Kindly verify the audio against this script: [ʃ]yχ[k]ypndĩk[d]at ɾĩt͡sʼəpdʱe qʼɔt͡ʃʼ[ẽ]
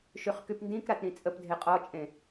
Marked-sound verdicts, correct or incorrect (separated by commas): correct, correct, incorrect, correct